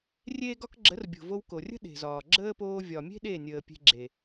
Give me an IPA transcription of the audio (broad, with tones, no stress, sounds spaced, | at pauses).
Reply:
rʲ eː˦ ɡ ɒ˦ k ɡ͡ǁ ə˨˦ r bʲ o̤˨ v o˧ w k o˨ rʲ ə̤˦ ɗ e̤˨ z ɒː˨ ɡ͡ǁ əː˦ p oː˧ vʲ ɒ˨ mʲ e̤˦ ɗ e˦˨ nʲ əː˨ pʲ e̤˧ ɡ͡ǁ e˨